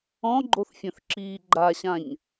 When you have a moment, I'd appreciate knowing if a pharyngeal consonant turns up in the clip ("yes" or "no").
no